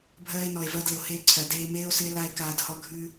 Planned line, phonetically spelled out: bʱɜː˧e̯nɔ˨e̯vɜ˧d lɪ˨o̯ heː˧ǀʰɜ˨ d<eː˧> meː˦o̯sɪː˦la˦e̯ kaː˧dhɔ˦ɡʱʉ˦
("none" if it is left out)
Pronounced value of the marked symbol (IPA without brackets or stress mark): eː˧